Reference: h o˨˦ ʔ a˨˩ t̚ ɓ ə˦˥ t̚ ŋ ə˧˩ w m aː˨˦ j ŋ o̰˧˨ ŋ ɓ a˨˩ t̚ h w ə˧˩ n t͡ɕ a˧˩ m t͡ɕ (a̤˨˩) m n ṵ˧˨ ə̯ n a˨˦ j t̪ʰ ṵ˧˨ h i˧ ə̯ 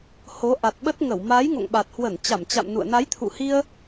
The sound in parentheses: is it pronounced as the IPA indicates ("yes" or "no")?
no